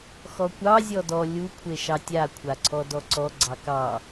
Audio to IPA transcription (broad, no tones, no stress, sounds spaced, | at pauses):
x ɔ kʷ ɑ zʲ ɔ d ɔ lʲ u kʷʰ e ʃ ɑ tʲ a kʷʰ a ǀʰ ɔ d ɔ ǀ ɔ ɡ͡ǀ ɑ k ɑ